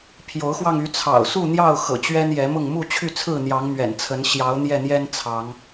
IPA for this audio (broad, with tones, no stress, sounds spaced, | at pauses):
pʰ j o˨˦ ʊ̯ x w ɑ˧ ŋ y˨˦ t͡sʰ ɑ̰˨˩ ʊ̯ s u˥˨ n̪ j ɑ˥˨ ʊ̯ x ɤ̰˨˩ t͡ɕ ɥ ɛ˦ n j ɛ˨˦ m ʊ˥˨ ŋ m u˥˨ t͡ɕʰ y˥˨ t͡sʰ ɹ̩˥˨ n̪ j ɑ˨˦ ŋ m ɥ ɛ̰˨˩ n t͡sʰ ə˨˦ n ɕ j ɑ˨˦ ʊ̯ n̪ j ɛ˥˨ n̪ j ɛ˦ n t͡sʰ ɑ˨˦ ŋ